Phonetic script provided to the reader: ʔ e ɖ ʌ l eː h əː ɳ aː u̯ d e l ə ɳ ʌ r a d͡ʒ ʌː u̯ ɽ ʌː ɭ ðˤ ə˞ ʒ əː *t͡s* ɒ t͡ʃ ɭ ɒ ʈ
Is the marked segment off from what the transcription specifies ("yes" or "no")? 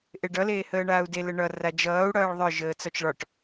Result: no